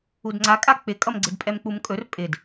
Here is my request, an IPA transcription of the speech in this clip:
udŋ͡ǀakʼa k͡pɪkʼʌmɡ͡ǀɪd pʼɛmk͡pumkʼɵr pʼɪd

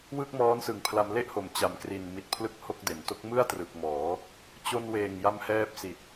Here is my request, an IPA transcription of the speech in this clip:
wɯ˥˩k̚mɔː˦˥nsɯ˨˩ŋ pʰla˧mle˥˩ʔho˩˦m t͡ɕa˩˦mkri˨˩nmi˨˩t̚ pʰlɯ˥˩k̚ho˥˩k̚de˩˦n to˦˥k̚mɯ˥˩a̯trɯ˨˩k̚mɔː˩˦ | t͡ɕo˧nweː˨˩ŋ ja˦˥mhɛː˦˥p̚si˨˩t̚

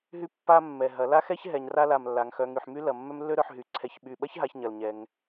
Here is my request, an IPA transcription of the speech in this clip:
ɦy˥ pːa˥ mːɛ˨˩ ɦɐ˩˧ la˥xɛ˥ç ɦɛ˩˧ɲra˥la˨˩m lːa˩˧ŋ xœ˩˧ ŋy˨˩ħmy˥ lɐ˨˩ mːœ˥mlːø˥ɾœ˩˧ħɦy˨˩ ǀʰɛ˨˩çɓy˨˩ɓɐ˥çɦa˩˧ç ɲɐ˨˩lɲɛ˩˧ŋ

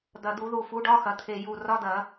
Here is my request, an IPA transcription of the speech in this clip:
d̪ɐ˨˩d̪u˧˩˧ðu˨˩ fu˩˥ɖɒ˧˥˧xɐ˩˧t̪ʰe˨˩ ju˨˩ rɒ˧˥˧d̪ɐ˧˩˧

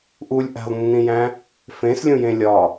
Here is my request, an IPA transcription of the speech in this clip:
ʔulʲ ʔæ̤lˠnːĩjæ̃ | fẽslʲũjẽ lʲɒ

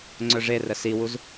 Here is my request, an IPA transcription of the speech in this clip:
ŋ͡ǀœʐerə siwuz

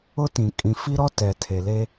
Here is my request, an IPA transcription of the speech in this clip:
ʊ˦tĩ˨ kʼĩ˨fi˦ɾɔ˦ tɛ˨tʰe˨le˦

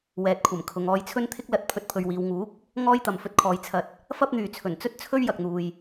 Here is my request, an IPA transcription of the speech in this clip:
wɛː˨t̚kʷʰɐ˨˩mkʰʊ˨ŋ ɔː˧jt͡sʰɵ˥n t̪ʰɪ˥k̚lɐ˧t̚ pʰɵ˧t̚pʰɵ˧ɥwiː˨˧w ŋuː˨˥k̚ | ŋɔː˥jt̪ɐ˨m fɵ˧t̚kʰɔː˨j t͡sʰɐ˧t̚ | fɐ˥p̚n̪yː˨ t͡sʰɵ˨˩nt͡sɵ˥t̚ t͡sʰɵ˥ɥjɐ˨k̚n̪uː˨j

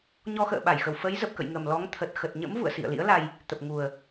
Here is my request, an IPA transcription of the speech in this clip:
ɲɔ˧xə̰ː˧˨ɓa˧˩jxə˨˩w fə˨˦jzə˨˩p̚kə̰˧˨j ŋə˨˩mlɔ˨˦ŋt̪ʰə˨˩t̚ xə˨˩t̚ɲə̰˧˥m vṵ˧˨ə̯sḭ˧˨ə̯lḭ˧˥ə̯ la˧j | t̪ə˨˩p̚ŋu˨˩ə̯

